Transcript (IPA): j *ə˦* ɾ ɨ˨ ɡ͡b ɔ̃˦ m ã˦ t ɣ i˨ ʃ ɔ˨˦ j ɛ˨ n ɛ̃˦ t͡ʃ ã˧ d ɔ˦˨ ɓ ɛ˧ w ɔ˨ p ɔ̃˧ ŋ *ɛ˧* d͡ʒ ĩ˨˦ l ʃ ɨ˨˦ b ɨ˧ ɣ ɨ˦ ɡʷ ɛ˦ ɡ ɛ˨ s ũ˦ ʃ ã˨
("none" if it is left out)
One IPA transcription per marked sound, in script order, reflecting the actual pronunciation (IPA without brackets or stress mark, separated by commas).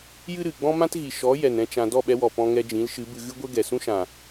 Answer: ɨ˦, ɛ˧